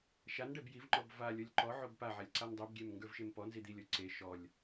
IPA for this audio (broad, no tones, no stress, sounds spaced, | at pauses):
ʃ a n ɖ ɛ b j i v ŋ͡ǃ ɔ b v a lʲ ɔ lʲ ǃ ɔ ʕ o b p a ʕ a lʲ ǀ a n dˤ i b ɡʲ ɛ m ŋ ɡ ə˞ v ʃ e m p ɔ n z i d̪ i lʲ ɔ ǀ e ʃ ɔ lʲ